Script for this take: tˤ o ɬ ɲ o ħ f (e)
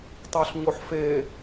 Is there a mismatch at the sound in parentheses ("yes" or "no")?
no